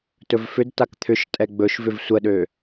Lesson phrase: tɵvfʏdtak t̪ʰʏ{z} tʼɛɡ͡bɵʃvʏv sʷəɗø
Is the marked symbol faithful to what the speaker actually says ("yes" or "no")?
no